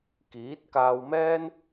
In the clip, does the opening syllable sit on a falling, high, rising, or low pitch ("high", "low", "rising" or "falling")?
rising